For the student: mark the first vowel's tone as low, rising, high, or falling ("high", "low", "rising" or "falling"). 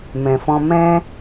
low